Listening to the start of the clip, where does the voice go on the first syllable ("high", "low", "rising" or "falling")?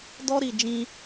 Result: high